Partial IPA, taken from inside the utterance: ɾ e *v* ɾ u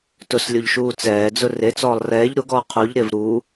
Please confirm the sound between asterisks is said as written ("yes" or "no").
yes